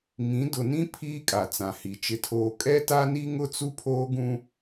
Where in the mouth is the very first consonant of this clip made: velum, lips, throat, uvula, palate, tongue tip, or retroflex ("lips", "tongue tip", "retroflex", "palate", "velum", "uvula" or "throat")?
velum